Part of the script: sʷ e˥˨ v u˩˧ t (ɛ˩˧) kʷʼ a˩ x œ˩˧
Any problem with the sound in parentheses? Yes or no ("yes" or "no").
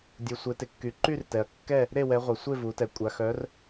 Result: yes